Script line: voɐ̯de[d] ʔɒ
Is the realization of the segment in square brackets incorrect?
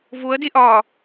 yes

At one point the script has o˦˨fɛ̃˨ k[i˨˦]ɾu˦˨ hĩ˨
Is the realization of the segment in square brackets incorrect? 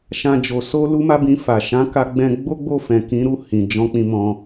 yes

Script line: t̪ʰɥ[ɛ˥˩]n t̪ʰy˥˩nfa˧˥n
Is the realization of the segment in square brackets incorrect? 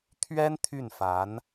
yes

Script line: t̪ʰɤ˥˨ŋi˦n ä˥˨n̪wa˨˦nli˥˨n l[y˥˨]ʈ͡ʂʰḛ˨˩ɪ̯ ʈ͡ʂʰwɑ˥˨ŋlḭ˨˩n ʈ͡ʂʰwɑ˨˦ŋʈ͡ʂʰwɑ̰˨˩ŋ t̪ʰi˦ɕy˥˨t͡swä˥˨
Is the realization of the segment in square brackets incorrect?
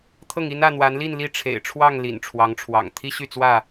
yes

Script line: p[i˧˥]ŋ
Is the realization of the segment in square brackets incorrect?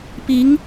no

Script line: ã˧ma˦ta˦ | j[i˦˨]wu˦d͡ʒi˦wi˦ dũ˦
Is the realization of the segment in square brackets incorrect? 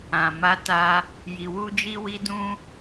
yes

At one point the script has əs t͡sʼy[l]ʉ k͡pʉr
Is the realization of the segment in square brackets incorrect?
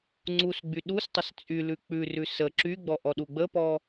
no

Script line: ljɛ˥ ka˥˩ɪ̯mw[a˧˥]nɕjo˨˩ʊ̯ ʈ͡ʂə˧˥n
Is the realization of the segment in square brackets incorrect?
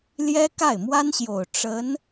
yes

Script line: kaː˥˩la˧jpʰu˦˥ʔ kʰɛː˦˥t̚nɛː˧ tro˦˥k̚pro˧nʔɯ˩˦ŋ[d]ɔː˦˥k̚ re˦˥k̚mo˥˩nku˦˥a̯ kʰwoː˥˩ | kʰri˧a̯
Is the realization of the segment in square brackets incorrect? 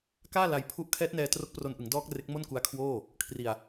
no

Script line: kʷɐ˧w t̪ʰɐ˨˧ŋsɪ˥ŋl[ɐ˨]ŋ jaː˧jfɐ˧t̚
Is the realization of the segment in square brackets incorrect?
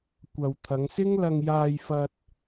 yes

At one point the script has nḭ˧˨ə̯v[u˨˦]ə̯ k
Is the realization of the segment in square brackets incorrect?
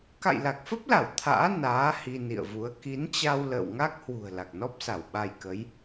no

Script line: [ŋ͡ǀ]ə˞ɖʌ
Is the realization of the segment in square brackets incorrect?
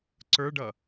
yes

